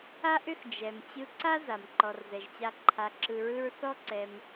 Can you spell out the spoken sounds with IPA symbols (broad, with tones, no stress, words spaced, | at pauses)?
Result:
a˦ʔʏ˦x d͡ʒɛ˨m t͡ɕɯ˧ǀa˦ za˨m ǃɔ˨rzɛ˨ʒt͡ɕa˧ ǃʰa˧ǁɯ˧ɹɯ˦ɹ θɔ˦ǀɛ˧m